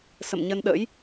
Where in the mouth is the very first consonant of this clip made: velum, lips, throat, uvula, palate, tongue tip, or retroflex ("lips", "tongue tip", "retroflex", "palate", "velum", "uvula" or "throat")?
tongue tip